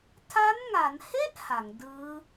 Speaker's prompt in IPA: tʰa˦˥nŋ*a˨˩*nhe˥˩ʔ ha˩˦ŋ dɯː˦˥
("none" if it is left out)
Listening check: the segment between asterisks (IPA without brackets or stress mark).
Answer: a˩˦